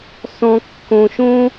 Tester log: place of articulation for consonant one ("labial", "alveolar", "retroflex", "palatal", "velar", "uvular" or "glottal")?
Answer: alveolar